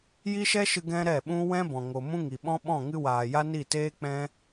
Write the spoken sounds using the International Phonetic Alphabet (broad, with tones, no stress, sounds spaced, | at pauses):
j i˦ ʃ ɛ˦ ʃ ɨ˧ ɡ ɛ̃˦ ɾ ɛ˦˨ ɓ ũ˦ w ɛ̃˦ b ɔ̃˨ ŋ o˨ m ũ˦ ŋ i˨ ɓ ɔ̃˦ ɓ ɔ̃˦˨ ŋ ɨ˧ w aː˨ j a˦ n i˦˨ t eː˦ k͡p ɛ̃˦